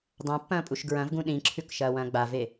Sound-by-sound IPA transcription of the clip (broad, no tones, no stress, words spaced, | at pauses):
dˤãpːɐ̃ːpʼuʃ ɡɹɐ̃vɡũ ɗĩǁʰʉkʃɐːwɐ̃ː ɡ͡bave